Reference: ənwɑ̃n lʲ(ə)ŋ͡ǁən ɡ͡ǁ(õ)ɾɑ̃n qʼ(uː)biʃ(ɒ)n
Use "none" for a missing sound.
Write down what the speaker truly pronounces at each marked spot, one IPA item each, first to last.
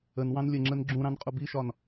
ə, ũ, u, ɒ

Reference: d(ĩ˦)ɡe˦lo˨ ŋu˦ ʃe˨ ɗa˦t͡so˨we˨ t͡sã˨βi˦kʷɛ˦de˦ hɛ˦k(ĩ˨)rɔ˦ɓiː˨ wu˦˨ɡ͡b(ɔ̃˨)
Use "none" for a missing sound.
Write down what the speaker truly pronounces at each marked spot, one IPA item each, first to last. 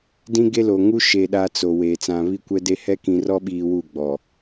ĩ˦, ĩ˨, ɔ˨

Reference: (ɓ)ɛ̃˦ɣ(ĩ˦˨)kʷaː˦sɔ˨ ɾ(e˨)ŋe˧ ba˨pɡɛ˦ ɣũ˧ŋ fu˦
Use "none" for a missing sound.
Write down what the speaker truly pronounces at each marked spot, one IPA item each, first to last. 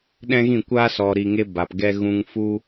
ɗ, ĩ˦˨, i˨

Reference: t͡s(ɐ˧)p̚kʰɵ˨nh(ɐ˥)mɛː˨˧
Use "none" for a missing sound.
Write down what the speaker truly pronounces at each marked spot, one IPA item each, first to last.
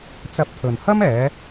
ɐ˧, ɐ˥

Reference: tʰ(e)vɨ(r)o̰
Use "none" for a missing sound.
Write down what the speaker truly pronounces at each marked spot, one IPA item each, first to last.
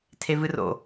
e, r

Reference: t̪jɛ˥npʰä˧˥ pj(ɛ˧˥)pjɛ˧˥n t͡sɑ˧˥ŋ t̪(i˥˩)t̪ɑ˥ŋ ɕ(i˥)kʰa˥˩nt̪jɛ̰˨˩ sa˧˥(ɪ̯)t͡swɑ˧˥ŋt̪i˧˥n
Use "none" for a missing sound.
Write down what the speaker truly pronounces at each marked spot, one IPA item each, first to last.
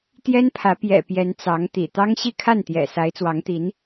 ɛ̰˨˩, ḭ˨˩, i˥˧, ɪ̯

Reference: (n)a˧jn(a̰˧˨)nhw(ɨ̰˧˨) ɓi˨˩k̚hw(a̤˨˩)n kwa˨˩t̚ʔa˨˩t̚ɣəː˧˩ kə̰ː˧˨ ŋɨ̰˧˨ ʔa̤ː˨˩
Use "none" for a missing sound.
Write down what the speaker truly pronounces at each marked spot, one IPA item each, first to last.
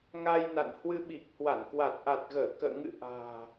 ŋ, a̰˧˨, ɨ˧, a˧˩

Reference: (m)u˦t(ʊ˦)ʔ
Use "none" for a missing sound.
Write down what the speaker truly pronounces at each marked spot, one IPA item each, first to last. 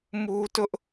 m, ʊ˦

